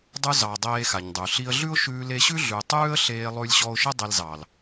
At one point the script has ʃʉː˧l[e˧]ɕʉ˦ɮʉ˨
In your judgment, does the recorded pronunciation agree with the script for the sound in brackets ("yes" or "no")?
yes